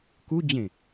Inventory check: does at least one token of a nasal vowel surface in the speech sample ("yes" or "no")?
yes